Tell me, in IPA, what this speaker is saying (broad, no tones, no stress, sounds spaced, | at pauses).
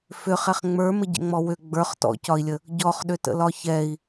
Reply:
f ʏ χ ɛ χ ŋ͡m ə˞ m ə ɟ ə̰ ŋ͡m ɔ w ʏ ɡ͡b ə˞ χ t ɔ̰ c ɒ i̯ lʲ ə | ɟ ɔ χ ɗ ʏ t ə̰ l ɒ ç ɛ i̯